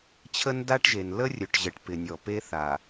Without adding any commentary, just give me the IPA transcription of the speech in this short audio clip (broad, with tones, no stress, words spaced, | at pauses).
t͡ɕʰə˦nda˦ʈʒe˨n lə˦rʲɵ˨ʈʑə˨ʈ pɪ˨nʲɔ˨pe˦ θa˨